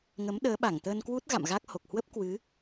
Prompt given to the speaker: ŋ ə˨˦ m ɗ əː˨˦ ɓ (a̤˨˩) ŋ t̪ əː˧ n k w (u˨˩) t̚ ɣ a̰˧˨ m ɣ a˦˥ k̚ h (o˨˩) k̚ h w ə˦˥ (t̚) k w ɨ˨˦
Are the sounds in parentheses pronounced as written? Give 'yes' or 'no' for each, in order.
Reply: no, no, yes, no

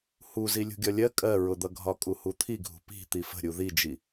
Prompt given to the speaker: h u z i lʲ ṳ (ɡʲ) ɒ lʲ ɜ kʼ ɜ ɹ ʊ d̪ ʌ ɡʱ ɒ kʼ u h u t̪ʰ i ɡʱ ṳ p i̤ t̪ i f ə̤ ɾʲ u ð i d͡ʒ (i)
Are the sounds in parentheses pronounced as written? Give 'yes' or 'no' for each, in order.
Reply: yes, yes

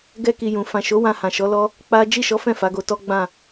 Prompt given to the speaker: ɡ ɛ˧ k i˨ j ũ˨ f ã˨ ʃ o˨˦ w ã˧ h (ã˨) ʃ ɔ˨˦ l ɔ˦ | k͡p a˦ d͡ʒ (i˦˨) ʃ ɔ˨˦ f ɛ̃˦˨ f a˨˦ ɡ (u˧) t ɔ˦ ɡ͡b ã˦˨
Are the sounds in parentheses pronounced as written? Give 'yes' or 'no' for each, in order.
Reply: yes, yes, no

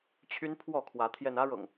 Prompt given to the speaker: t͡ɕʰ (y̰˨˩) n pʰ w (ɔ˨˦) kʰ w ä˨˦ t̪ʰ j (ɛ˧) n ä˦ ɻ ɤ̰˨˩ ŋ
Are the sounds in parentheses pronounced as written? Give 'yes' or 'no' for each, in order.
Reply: no, no, yes

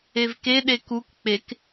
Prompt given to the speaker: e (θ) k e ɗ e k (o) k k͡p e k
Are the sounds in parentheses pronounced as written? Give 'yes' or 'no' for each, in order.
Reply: no, no

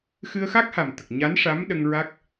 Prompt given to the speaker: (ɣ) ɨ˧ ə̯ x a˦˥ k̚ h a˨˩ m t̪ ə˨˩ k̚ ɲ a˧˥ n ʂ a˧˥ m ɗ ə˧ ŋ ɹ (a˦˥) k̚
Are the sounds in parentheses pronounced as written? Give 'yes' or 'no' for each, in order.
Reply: no, yes

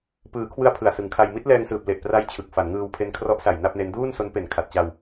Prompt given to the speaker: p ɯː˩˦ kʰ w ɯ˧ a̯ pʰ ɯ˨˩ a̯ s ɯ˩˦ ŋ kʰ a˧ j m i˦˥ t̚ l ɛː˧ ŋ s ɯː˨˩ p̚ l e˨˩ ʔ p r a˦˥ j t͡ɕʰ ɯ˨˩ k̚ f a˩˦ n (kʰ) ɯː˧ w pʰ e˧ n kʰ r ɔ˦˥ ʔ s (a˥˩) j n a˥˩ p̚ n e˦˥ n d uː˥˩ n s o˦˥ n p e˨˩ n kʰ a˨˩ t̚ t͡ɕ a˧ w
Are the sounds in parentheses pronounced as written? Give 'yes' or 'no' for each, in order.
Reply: no, no

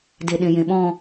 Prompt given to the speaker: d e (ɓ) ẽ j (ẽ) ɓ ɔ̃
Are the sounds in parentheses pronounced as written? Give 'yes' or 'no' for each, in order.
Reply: no, yes

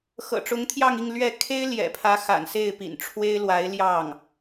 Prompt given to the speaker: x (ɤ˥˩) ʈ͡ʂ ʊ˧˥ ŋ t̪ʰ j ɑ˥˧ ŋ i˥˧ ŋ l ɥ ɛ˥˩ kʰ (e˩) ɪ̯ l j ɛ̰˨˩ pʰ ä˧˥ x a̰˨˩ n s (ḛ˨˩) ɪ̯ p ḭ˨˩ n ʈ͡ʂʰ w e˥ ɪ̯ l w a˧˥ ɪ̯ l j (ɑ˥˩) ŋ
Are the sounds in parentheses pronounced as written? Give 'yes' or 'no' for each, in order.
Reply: no, no, no, yes

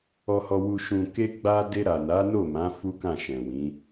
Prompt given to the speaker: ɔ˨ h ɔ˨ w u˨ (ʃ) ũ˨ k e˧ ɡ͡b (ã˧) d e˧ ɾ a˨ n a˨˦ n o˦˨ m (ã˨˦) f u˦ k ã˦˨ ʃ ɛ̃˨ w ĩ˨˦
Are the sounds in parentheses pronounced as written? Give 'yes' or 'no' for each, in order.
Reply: yes, no, yes

